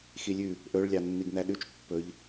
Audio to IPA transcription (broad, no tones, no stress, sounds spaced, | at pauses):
x i lʲ ʉ | ʔ ɵ ɭ lʲ ɑ nː i ɡ n æ ɗ ʉ t͡ʃ pː ɵ ʎ